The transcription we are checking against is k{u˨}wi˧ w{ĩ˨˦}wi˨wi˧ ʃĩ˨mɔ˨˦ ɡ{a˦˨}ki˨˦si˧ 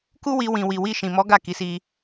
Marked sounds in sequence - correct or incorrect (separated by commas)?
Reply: incorrect, incorrect, correct